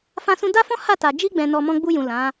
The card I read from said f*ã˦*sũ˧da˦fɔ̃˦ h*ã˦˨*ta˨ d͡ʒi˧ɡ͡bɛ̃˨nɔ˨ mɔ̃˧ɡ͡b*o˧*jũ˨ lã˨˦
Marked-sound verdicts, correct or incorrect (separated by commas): incorrect, incorrect, incorrect